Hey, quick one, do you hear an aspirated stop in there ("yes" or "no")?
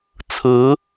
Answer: yes